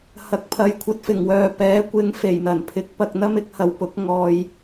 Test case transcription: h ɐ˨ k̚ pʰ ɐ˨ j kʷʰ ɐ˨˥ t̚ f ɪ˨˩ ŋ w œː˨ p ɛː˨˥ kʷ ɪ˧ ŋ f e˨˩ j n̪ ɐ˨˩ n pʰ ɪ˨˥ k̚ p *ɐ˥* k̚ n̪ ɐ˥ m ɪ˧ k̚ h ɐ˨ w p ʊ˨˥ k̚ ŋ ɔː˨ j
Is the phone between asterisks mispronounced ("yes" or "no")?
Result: yes